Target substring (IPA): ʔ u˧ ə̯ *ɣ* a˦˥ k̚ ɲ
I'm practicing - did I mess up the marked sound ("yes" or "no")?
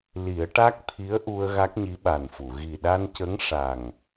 no